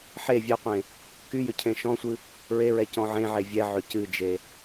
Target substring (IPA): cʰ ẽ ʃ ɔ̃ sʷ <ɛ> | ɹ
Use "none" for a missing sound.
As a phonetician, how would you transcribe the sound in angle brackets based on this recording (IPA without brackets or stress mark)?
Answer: ɨ